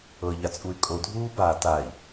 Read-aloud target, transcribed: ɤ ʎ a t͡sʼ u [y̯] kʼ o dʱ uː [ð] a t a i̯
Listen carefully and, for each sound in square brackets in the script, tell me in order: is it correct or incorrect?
correct, incorrect: b

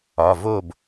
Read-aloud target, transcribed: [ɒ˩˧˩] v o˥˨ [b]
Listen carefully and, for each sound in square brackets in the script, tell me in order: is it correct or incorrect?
correct, correct

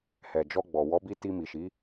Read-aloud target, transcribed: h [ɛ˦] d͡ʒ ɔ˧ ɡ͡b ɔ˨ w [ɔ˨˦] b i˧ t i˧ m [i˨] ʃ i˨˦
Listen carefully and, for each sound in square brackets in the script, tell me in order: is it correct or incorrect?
incorrect: ɛ˨, correct, correct

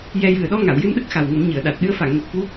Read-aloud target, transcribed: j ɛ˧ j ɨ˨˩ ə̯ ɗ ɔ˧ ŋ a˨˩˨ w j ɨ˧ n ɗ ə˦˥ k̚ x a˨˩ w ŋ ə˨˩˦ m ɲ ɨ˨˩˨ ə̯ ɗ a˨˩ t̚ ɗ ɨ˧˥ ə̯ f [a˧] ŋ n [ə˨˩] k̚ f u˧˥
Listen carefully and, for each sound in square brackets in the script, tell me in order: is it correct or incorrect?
incorrect: a˨˩˨, correct

